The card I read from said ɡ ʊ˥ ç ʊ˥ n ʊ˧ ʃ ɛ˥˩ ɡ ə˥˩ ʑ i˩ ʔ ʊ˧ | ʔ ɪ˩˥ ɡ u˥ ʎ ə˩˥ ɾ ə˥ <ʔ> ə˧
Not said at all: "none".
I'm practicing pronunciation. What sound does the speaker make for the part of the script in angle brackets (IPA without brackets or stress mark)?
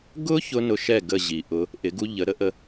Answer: ʔ